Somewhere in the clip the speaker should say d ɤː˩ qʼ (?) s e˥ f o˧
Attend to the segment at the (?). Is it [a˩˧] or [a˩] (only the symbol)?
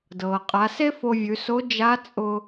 a˩˧